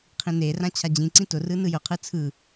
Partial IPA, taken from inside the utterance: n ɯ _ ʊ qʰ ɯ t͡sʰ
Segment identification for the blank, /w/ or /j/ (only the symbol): j